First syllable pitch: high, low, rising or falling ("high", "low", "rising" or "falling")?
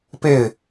falling